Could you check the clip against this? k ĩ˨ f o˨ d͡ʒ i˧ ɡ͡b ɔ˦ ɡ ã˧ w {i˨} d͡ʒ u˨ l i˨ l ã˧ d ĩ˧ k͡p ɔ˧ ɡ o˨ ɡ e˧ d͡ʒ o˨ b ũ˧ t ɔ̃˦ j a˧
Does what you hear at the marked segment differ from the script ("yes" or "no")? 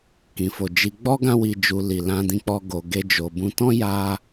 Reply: no